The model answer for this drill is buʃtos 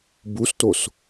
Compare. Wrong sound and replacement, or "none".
ʃ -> s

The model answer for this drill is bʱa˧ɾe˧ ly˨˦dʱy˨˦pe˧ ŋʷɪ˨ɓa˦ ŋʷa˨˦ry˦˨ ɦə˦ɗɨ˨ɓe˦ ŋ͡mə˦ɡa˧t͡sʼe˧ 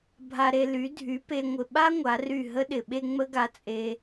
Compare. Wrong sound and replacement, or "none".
ɨ˨ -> ɪ˨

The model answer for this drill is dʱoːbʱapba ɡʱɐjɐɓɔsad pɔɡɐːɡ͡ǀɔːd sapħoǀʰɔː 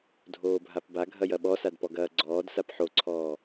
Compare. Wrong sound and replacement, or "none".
none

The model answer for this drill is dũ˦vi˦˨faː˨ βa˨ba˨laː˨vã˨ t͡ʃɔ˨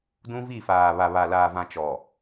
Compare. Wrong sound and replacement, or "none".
b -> β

